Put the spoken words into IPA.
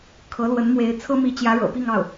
kʰ ɤ˧˥ l w ə˧˥ n m w e˧˥ ɪ̯ t͡sʰ ɤ˥ m i˧˥ t͡ɕ j ä˧˥ ɻ ɤ̰˨˩ p i˥˧ ŋ ɑ˥˩ ʊ̯

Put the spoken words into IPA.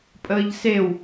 pʼ əː ʎ s e w

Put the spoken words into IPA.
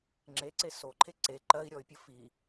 ŋ͡ǁ e ǀ e s o ǃʰ e ǀ e ǃ ɜ i̯ ɾʲ ɔ y̯ pʲ ə f i

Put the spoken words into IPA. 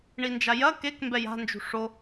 ɳ i n d͡ʒ a j ɐ k e k m b ɛ j a̤ n d͡ʒ ṳ ʂ o

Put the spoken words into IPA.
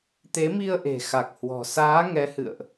t̪ e˨˦ m i˧ ə̯ ʔ e̤˨˩ x a˨˩ k̚ h w ɔ̤˨˩ s aː˨˦ ŋ ɛ˨˦ h ɨ̰˧˨ ə̯ ʔ

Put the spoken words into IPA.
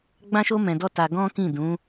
ɡ͡b ã˦ ʃ o˦ m ɛ̃˧ d ɔ˦ t a˧ ɡ ɔ̃˦ k ĩ˦˨ d ũ˨˦

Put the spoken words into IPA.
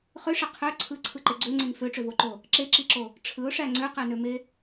χ ø ʂ e qʰ ø ǀʰ ɯ ǀʰ ɯ ǃ e ɡ͡ǀ ø ŋ͡ǀ e n f ø ʈ͡ʂ ø v o ǃ o | ǁ e ǁ i ǁ o | ʈ͡ʂʰ ɯ ʊ̯ ʂ æ ŋ͡ǀ ø q æ n ø m e

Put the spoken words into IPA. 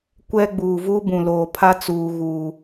kʷ ɛ˦ ɡ͡b uː˨ v u˦ b ũ˨ l oː˨ pʰ a˦ t͡s uː˨ ɣ uː˨

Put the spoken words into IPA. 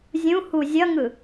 zʲ ũ h u zʲ ʌ ŋ ɯ

